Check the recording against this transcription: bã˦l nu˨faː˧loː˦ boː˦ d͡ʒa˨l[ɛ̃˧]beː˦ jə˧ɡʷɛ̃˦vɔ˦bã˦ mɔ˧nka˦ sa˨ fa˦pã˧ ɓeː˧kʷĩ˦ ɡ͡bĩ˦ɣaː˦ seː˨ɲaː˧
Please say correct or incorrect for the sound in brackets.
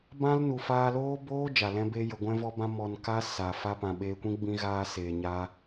incorrect: ɛ̃˦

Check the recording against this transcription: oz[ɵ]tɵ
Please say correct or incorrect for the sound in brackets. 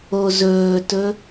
incorrect: ɵː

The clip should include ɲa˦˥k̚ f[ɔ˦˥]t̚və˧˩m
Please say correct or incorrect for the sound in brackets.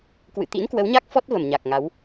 correct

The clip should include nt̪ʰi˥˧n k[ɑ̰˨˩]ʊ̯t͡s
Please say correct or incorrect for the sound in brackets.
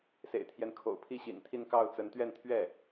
incorrect: ɑ˥˩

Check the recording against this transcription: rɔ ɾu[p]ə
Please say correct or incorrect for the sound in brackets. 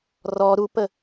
correct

